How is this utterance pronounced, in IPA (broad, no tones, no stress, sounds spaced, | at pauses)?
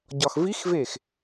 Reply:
ɟ ɒ x v i x v e x